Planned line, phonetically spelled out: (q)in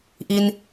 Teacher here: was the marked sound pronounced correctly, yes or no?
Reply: no